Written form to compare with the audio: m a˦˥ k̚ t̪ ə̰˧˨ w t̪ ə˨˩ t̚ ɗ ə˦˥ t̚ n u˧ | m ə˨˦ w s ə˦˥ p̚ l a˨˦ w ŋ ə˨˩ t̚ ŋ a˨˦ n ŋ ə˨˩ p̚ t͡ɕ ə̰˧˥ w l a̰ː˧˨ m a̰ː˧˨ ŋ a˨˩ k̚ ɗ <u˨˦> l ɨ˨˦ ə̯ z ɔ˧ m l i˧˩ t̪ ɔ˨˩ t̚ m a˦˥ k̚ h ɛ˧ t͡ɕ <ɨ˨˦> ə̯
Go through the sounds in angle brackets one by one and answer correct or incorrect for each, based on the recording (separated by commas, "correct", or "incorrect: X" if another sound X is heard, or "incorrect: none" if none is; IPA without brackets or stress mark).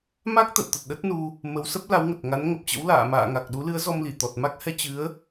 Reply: correct, correct